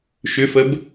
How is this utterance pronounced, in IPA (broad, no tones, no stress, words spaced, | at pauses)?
ʃʏfəb